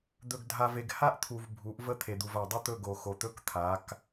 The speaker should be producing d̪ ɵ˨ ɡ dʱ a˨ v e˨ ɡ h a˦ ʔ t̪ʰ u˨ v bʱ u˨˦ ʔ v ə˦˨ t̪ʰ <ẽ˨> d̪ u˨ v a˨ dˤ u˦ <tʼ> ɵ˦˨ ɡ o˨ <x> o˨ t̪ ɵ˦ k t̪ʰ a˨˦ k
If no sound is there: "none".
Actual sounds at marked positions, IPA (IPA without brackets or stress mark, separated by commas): e˨, t̪, x